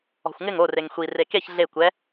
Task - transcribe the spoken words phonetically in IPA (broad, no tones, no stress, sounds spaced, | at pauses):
ɔ̤ xʷ ŋ ɪ ŋ o r e ŋ xʷ i r e k e ç ɮ e kʷ ɛ